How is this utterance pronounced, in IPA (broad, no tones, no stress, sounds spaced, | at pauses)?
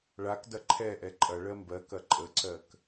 ɭ a k d ɐ ǃʰ ɛ ʔ ɛ ǃʼ ɐ ɭ ɜ m b ɜ k ɐ ǃʼ ə ǀ ɜ k